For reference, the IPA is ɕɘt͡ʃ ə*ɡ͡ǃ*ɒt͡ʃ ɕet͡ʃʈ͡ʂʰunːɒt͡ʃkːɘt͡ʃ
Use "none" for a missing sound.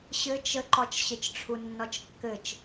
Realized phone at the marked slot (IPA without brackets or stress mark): ǃ